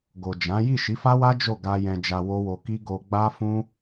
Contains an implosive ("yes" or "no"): no